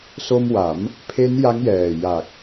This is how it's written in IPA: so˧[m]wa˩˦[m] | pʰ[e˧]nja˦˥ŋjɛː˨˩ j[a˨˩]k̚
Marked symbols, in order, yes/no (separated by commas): yes, yes, no, yes